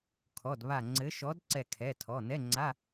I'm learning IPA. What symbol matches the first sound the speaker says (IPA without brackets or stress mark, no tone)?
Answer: kʰ